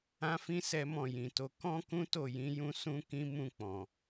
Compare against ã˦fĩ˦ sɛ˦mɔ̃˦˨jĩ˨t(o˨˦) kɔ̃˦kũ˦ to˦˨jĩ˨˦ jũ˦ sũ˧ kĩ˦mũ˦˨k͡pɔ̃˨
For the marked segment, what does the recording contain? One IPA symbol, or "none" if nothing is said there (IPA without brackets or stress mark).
o˨˦